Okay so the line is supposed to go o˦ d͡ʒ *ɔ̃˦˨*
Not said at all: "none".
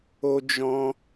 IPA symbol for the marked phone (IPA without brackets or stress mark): ɔ̃˦